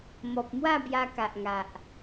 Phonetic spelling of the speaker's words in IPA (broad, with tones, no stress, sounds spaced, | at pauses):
m ɔ˨ p̚ m w a˥˧ b j a˧ k a˨ ʔ ŋ a˨ ʔ